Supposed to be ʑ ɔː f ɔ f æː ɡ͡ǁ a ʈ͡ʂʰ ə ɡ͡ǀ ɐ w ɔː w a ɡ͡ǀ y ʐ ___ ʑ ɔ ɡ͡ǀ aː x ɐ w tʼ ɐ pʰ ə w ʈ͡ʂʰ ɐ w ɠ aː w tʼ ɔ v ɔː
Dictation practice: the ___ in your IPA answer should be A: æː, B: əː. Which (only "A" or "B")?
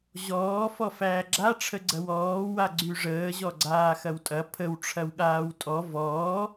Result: B